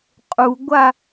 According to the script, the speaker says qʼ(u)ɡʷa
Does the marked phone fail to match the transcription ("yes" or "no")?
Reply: no